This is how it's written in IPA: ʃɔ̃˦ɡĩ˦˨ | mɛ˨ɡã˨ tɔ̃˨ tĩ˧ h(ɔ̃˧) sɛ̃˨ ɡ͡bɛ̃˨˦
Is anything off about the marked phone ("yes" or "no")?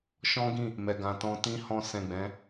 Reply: no